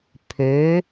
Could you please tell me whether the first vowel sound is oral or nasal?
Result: oral